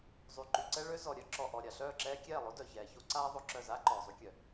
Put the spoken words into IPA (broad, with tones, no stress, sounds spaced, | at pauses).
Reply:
zˤ y˨ ǃ y˨ ǀ ɛ˦ ɭ ø˦ z ɔ˨ ɾʲ œ˦ ǁ ɔ˨ ʔ ɔ˨ ɾʲ a˨ ɬ œː˦˨ ǁ ɛː˦ kʲ ɛː˦˨ lˠ o˦ d œ˨ ç ɛː˨ ç o˦ ǀ aː˦ ðˤ o˧ ǁ œ˦˨ z aː˦ ǃ ɔː˨ zˤ y˧ kʲ œ˨